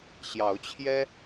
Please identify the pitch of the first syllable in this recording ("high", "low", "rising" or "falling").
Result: rising